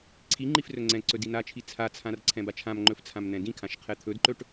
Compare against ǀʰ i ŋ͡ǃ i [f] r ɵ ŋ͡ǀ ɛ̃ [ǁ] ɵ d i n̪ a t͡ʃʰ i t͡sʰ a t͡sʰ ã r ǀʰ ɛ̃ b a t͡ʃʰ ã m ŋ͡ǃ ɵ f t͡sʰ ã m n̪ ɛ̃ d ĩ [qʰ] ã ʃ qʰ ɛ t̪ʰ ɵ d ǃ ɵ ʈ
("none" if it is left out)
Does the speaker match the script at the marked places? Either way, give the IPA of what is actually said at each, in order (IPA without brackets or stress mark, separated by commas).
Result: f, ǀ, kʰ